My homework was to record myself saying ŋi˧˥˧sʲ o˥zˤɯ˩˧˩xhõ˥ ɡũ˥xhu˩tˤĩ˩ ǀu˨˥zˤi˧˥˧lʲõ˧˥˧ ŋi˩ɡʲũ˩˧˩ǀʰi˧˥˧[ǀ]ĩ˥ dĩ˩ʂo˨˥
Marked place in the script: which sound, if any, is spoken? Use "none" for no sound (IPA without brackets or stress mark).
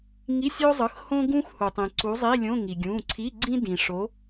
ɡ͡ǀ